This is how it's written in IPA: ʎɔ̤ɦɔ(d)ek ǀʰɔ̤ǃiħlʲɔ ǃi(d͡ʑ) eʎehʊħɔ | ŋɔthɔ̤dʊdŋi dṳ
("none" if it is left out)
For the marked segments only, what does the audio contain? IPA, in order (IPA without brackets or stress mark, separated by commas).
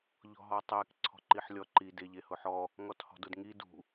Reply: tˤ, d